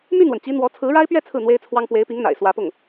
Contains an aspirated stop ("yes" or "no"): yes